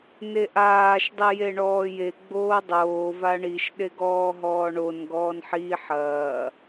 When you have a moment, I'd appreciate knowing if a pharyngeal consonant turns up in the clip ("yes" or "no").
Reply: yes